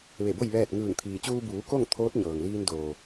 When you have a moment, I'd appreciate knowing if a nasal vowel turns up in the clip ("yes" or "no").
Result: no